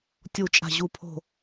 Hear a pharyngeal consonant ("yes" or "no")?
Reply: no